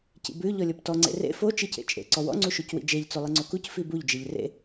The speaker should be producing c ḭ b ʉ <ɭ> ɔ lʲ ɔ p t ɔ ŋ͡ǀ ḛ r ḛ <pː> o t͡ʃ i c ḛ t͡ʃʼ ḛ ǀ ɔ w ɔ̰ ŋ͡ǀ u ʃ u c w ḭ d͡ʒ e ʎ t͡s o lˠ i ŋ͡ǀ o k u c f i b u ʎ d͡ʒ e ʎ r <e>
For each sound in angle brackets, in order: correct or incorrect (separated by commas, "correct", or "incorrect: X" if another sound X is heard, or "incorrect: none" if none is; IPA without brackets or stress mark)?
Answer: incorrect: ʎ, incorrect: f, incorrect: ḛ